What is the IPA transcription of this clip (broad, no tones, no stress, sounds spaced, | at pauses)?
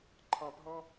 ǃʰ ɑ̃ p ɦ ɔ̃